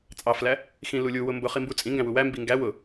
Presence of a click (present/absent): absent